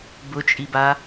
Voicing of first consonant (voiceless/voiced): voiced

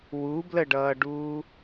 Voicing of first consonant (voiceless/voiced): voiced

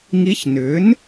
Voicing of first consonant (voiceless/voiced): voiced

